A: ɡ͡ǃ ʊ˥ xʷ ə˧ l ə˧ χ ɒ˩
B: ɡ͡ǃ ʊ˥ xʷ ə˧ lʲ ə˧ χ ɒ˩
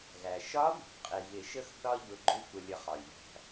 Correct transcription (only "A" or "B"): B